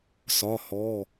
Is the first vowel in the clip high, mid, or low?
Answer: low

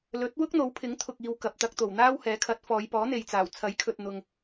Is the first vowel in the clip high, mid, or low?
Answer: mid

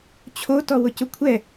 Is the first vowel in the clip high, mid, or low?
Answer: mid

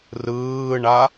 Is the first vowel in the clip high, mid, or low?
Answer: high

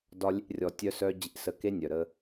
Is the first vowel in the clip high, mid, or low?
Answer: low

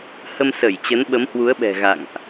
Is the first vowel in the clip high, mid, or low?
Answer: mid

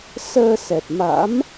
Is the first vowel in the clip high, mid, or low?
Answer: mid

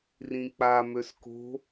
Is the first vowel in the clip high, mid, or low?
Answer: high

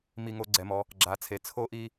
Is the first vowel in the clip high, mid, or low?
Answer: high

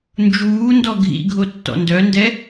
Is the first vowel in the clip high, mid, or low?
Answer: high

